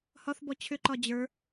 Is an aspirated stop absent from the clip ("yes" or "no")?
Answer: no